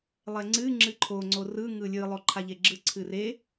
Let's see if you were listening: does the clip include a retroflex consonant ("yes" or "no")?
no